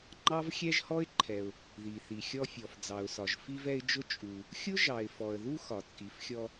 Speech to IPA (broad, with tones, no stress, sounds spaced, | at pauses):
ŋ͡ǃ ɑ˥ v xʲ ɛ˥ ʒ h ɔ˥ ɪ̯ ǃʰ ɛ˩ ʊ̯ | ð i˩ θ i˩ xʲ ɔ˧ fʲ ɔ˩ f d͡z ɑ˩ ʊ̯ s ɒ˩ ʒ f i˧ v ɛ˧ ɪ̯ d͡ʒ ʊ˧ t͡ʃʼ u˩ | xʲ ʊ˥ ʒ ɑ˩ ɪ̯ f ɔ˩ ə̯ ð u˧ x ɒ˩ t͡sʼ i˩ f xʲ ɔ˧